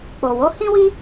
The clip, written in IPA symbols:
k͡po˨wo˨˦ hĩ˦wi˦

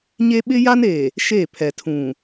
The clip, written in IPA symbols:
ɲe˦ ɓɪ˦ja˦ne˨ | ʃe˦˨pʰɛ˨tʰũ˨

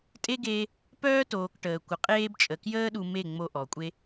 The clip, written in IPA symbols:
tʼe˦ɡeː˧ | pœː˦toː˨k ʈəː˨ kʷə˨ qʼeː˧bt͡ʃʼə˨kjəː˦ ɗu˧me˦˨ŋ͡mo˧ ʔɔ˨kʷʼe˦

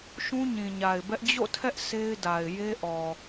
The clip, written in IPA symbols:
ʃũ˦ɲĩ˨ɲa˨ɪ̯bɛ˦ʔ d͡ʑo̰˦˨tʰɛ˦ʔ sʰe˦ɪ̯da˨ɪ̯ je˦ʔɔ˨

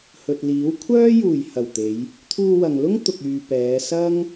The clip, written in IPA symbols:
hɵ˨t̚liː˨˥w kʷʰœː˥juː˨˩j hɐ˨˩wt̪e˨˧j | t̪ʰuː˧wɐ˨ŋlʊ˥ŋ t̪ʊ˨k̚yː˨ pɛː˨˧ sɐ˥ŋ

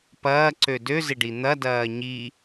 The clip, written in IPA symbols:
pɐːǀø døzɪɖi n̪ɐdɐː ɲi

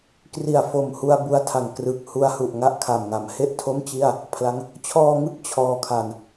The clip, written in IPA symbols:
kri˨˩a̯fo˨˩mhu˧a̯ bu˦˥a̯tʰa˨˩ŋ krɯ˨˩k̚hu˧a̯hu˨˩ʔ ŋa˥˩ʔkʰa˨˩mŋa˩˦m he˥˩ʔtʰo˥˩mt͡ɕi˥˩a̯ | pʰla˦˥ŋ | t͡ɕʰɔː˧ŋɯ˦˥k̚ t͡ɕʰɔː˧ kʰa˧n

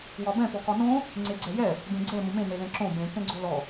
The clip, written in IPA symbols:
wɒbɛ̃ pɔkɒnõ | ŋ͡ǀeɡ͡ǀɛjɛ | bẽɡ͡ǀɛ mõmẽ nelɛ̃ǁõ bẽ kɛ̃ɡ͡ǀolɔ

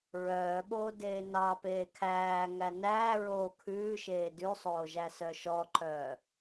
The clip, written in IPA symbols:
ɹœːɓoː deːnɑ peːkʰæː ŋænæː ɹoːkʰʉːʃeː dʉsˤoːʒæsœ ʃɔǃœː

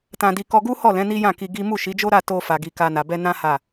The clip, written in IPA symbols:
tã˧di˧ kɔ˧ɡu˦hɔ˦˨lɛ̃˨˦ ni˦jã˦˨ki˧ ɡi˦ mu˦˨ʃi˨˦d͡ʒo˦ɾa˦˨ to˧fa˨ ɡi˧ka˧na˨ bɛ˧ nã˦ ha˦˨

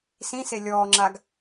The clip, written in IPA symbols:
sĩse lʲɔːŋ͡ǁaɡ

